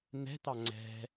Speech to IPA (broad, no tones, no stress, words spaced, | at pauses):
n̪ɛ̤t̪ɑ ŋ͡ǀɛ̤